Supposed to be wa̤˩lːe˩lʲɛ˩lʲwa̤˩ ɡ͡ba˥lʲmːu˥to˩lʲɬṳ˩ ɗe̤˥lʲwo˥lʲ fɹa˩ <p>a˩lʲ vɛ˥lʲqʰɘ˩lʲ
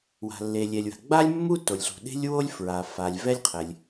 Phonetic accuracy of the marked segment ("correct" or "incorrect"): incorrect